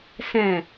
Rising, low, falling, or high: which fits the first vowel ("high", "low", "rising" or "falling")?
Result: low